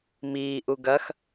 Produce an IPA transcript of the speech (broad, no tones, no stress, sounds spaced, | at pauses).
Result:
m iː ʔ u ɡ ɐ x